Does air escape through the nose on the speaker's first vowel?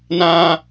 yes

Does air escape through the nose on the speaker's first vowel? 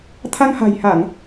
no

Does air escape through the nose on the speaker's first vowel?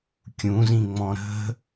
yes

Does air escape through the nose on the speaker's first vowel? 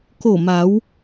no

